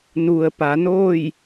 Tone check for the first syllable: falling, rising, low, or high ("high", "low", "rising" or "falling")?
low